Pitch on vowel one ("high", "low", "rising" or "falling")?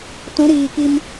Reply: rising